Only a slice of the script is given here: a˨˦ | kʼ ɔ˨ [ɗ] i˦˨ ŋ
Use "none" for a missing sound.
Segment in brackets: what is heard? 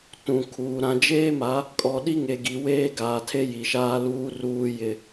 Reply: ɗ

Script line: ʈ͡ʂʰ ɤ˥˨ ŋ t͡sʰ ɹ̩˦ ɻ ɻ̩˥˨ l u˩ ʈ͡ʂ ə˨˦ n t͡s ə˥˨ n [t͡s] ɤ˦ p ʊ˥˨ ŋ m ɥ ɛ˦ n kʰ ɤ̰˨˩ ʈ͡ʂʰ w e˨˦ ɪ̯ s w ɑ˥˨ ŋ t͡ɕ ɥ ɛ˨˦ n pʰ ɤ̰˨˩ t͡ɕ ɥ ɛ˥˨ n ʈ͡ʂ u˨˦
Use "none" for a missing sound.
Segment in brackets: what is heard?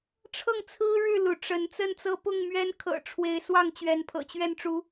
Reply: t͡s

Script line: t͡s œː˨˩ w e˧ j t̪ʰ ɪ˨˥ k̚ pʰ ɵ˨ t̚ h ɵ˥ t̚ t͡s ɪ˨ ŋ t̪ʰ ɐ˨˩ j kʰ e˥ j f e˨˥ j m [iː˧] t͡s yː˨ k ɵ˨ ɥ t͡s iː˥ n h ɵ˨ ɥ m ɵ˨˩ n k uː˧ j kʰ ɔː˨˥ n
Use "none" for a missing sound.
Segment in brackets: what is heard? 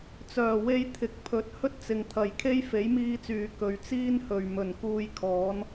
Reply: iː˧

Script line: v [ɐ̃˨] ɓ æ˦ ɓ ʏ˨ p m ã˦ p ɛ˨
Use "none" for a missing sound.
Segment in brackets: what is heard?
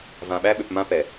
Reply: ã˨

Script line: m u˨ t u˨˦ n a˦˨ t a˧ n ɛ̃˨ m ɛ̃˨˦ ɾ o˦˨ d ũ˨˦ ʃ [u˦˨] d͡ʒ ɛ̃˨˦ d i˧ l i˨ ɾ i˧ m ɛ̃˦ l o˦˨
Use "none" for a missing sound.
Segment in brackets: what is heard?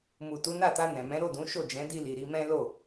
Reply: o˦˨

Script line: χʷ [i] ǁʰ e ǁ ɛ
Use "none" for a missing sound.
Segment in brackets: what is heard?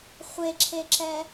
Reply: e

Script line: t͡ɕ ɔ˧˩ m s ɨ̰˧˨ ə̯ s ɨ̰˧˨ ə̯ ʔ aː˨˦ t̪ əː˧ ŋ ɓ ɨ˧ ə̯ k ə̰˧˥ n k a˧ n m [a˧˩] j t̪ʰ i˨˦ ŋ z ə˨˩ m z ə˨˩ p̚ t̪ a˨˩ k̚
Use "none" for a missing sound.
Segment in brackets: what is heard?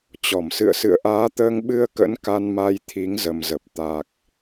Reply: a˧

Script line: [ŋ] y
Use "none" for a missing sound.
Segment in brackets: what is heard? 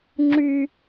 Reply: ŋ͡ǁ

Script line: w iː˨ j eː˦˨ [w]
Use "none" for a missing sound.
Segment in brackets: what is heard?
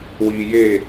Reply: none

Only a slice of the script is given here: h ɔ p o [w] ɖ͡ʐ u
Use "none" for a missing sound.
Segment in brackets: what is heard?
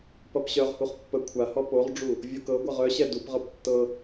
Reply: ʁ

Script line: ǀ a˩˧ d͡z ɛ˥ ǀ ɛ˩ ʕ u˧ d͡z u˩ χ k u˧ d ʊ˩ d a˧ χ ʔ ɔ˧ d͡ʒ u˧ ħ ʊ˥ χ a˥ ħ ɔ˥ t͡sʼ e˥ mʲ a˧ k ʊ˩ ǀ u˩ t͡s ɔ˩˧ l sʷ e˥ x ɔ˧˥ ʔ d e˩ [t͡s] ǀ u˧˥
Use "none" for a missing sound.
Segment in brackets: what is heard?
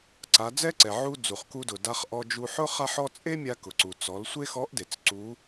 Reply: t͡s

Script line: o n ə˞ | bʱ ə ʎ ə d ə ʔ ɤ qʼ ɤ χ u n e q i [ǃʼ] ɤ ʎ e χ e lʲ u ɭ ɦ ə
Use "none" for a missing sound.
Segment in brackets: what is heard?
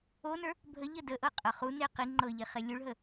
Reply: ŋ͡ǃ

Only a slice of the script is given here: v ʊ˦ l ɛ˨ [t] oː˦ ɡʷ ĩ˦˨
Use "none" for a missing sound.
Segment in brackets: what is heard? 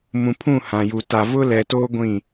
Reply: t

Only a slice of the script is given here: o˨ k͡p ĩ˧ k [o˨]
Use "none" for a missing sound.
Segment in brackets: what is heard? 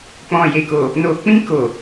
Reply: o˨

